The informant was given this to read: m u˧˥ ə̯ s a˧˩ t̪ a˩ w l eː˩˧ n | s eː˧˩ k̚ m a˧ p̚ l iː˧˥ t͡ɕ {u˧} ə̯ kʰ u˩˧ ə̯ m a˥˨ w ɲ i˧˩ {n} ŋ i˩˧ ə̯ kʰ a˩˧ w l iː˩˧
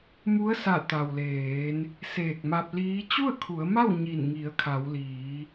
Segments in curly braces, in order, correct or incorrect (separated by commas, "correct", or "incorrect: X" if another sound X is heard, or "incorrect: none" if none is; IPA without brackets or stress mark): incorrect: u˥˨, correct